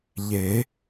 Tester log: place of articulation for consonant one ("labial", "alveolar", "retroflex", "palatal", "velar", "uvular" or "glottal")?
palatal